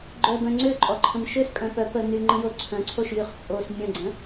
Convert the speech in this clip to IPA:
ɡ͡ǃœbœ̃ ŋ͡ǀøǃʼɔǃʰə̃m ʃøskʼœ̃ pœ pə nyŋ͡ǃə̃jo ǀʰœ̃ǀʰoʃjyχ t͡sʼos mʲə̃ɡ͡ǀə̃

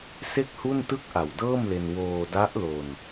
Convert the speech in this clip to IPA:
se˥˩k̚hu˥˩n tɯ˥˩k̚ʔa˨˩wdɤː˥˩mle˧n woː˧da˦˥ʔlo˧n

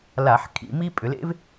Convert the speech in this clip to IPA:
la˧˩˧ħkʰḭ˧˩˧mi˥ pʼʏ˩˧lḛ˥v

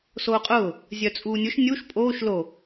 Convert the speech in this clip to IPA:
soːqʼʊː | zʲœt͡sʼuːnʲʊʃ nʲuʃ pʼoːʃ lo

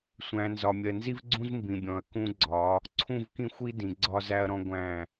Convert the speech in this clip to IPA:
sʷæ̃˨ nzɒ˨mʲɜ˨nzi˦vɡ͡ǀũ˦z mbĩ˨bʲɔ̃˨ɐ̯ kũ˦ɡ͡ǀɒ˨˦ | ǀʰũ˦˨vkĩ˦xʷi˦ dĩ˨ɡ͡ǀɒ˦zæ˦ɐ̯ɾɔ̃˦ ɡʷæ̃˦˨

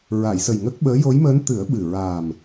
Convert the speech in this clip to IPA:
ɹa˨˩˨jsə˨˩j ŋə˦˥k̚ɓəː˧˥ jo˧˥jməː˧˥n t̪ɨ˨˩˦ə̯ɓɨ˨˩ ɹaː˨˩m

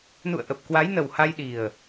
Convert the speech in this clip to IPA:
nṵ˧˨ə̯ʔə˨˩p̚ kwa˨˦jnə˨˩wha˧j ɗi˨˩ə̯

